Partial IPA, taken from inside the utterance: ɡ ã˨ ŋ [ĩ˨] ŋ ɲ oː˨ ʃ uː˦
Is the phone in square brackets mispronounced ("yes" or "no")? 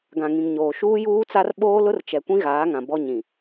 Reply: no